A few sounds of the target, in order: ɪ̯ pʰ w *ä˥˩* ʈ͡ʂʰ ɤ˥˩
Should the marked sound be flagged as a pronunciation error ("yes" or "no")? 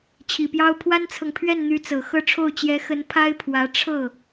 yes